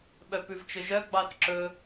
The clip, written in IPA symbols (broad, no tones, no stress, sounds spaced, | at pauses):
ɓ œ p ʉ v t͡ʃ ɵ ʒ œ ɡ͡b ɑ θ ǁ ɵ